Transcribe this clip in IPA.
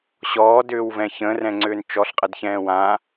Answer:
ɕ ɔː d ʏː w v ɛ̃ ç ə̃ː r ɛ̃ ŋ͡ǀ ʏː n t͡ʃ ɔ ɬ qʼ ə d ç ɛ̃ː w ã

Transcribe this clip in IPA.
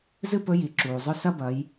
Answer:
z ɨ˥ p ɵ˧˥ j i˩ ǁ uː˩ zˤ ɵ˥ s ɐ˥ b ɐ˩˧ j

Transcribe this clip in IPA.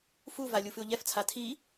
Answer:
f u v a lʲ u f ɨ ʊ̯ ʎ ɛ f t͡sʰ a tʰ i

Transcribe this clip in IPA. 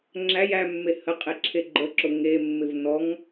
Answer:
ŋ͡ǁ æ j æ mː e h ə qʼ e ǁʰ e ɡ͡ǃ ə ǁ ʊ ŋ e mː ɪ v n ɔ ŋ

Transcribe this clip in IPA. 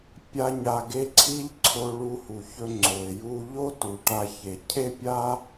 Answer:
pʲ a˥ ɲ a˧ ɡ e˥ ǀʰ i˥ ʎ ǀʰ o˧ ɭ u˧ h u˩ ç ɵ˧ ŋ͡ǀ o˩ ɪ̯ j u˧ ʎ o˥ t u˩ ʈ a˧ ç e˩ cʰ e˥ pʲ a˥

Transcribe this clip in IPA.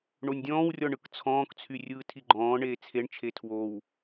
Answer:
ɳ o nʲ dʲ ɔ̃ː w rʲ ɔ ɳ ɯ k t͡sʰ ɔ̃ː k t͡sʰ y rʲ ɯː tʰ i ɡ͡ǃ ɔ̃ː ɳ eː t͡sʰ e ɳ t͡ʃʰ e tʰ w o w

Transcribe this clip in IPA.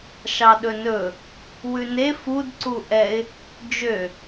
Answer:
ʃ ɑ ɗ ɵ n ɵ | w ʉ n e f u d ǀ u ʔ ɛ ɪ̯ | d͡ʒ ø

